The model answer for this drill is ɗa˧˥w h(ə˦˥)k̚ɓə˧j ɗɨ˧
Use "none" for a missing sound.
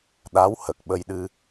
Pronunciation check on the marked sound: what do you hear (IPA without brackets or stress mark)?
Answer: ə˨˩